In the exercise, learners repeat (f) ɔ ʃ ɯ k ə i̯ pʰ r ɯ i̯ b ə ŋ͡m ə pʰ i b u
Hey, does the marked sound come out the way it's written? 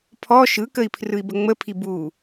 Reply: no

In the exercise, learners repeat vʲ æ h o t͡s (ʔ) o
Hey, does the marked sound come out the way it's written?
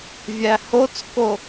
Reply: no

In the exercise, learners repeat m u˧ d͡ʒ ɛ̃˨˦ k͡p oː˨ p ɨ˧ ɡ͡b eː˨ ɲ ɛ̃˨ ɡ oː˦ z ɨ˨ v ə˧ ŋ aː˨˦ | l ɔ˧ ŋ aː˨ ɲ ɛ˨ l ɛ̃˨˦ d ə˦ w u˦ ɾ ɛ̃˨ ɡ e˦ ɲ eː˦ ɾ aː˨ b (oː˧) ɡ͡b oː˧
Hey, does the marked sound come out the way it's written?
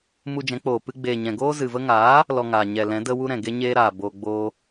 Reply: yes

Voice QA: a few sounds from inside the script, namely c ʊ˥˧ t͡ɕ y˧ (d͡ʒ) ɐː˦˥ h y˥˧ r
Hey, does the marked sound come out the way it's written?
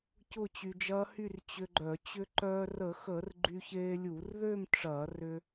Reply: yes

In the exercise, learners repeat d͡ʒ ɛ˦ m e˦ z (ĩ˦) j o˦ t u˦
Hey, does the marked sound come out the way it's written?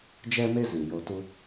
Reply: no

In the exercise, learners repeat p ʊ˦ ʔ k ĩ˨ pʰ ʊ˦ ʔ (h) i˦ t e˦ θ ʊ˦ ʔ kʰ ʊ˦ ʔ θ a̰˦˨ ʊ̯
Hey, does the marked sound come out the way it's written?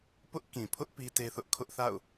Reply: no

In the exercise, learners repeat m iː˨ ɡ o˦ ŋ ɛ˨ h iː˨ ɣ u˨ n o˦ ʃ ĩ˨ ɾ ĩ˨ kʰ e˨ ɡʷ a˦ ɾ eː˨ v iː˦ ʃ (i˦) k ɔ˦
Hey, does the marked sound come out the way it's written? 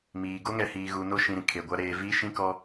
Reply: no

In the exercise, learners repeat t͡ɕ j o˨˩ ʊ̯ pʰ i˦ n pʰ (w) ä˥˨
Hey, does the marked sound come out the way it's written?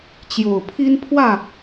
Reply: yes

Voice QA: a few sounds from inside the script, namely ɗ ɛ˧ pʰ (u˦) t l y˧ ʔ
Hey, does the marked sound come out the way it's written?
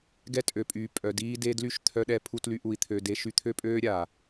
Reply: no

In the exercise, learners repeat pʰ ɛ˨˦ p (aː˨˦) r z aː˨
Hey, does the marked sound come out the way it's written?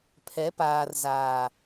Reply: no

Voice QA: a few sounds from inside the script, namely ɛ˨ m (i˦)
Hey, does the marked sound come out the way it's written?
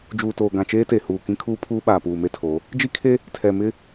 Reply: no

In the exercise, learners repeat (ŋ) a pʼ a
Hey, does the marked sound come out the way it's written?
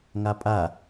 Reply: yes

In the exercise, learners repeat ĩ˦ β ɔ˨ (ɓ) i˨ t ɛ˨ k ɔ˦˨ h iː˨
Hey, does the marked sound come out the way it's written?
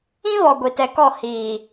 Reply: no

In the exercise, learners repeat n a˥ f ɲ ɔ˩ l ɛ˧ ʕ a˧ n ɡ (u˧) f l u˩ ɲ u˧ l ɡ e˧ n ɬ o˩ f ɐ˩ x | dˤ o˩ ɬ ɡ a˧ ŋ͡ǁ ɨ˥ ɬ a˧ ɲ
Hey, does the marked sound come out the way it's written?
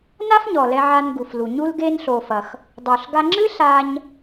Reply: no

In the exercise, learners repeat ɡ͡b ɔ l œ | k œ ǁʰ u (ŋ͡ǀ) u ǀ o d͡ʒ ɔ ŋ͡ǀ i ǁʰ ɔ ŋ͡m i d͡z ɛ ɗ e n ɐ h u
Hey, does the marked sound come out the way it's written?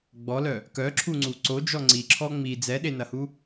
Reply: yes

